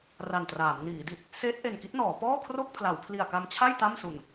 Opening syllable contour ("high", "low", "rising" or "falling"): low